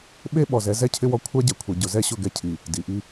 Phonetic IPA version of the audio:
ɓe˦ɓɔ˨zɛ˨˦zɛ˦ cʰɪ˦wɔ˦ kʷʰa˦ɟɛ˨kʷʰɛ˨ ɟʊ˨zɛ˦ɕʊ˦˨ɡɛ˦ cʰi˨ | di˨ʔi˦

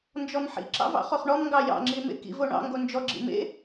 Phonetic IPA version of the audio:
nd͡ʒɔmħḭǁɑ̰v ɑ̰χoχɳɔmŋɡɑ jɑ̰ŋ͡ǁi mḛkḭvo ɳɑ̰ŋɡo nd͡ʒɔɡ͡ǁḭ mḛ

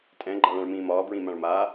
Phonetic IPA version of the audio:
tʼɛ̃ɡ͡ǃaɭãɭmĩː mɒːbɹĩmãɭ maː

